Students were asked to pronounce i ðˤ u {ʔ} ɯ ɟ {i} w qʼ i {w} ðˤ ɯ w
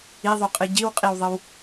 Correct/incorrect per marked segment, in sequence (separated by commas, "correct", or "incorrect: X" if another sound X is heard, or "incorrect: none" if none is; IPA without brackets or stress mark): incorrect: qʼ, correct, correct